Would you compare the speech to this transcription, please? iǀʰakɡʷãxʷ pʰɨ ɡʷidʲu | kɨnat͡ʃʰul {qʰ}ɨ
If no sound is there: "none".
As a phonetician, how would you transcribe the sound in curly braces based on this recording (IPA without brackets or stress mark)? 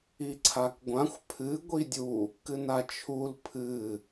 pʰ